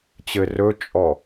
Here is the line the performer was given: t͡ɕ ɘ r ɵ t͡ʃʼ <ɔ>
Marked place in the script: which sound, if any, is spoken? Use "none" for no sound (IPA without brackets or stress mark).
ɔ